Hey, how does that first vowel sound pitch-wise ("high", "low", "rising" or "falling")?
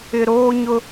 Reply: low